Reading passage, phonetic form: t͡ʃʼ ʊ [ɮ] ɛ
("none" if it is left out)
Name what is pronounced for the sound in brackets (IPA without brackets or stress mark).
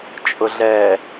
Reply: ɮ